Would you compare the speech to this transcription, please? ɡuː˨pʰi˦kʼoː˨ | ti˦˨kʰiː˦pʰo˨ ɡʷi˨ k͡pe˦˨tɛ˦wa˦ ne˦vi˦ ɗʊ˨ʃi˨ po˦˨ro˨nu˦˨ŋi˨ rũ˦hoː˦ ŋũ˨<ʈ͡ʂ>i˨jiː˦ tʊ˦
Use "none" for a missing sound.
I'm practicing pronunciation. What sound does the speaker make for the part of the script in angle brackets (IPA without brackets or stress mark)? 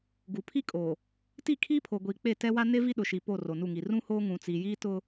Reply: t͡s